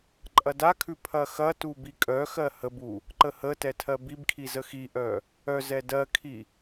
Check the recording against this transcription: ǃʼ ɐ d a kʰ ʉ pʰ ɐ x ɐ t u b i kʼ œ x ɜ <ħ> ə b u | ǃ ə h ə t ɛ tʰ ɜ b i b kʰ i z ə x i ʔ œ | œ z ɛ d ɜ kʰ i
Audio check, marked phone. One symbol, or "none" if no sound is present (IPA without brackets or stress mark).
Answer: h